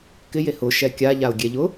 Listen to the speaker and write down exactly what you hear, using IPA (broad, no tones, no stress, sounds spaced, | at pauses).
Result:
k ɪ j e h ʊ ʃ ɛ kʲ a ʎ a ʊ̯ ɡʲ ɛ ʎ ʊ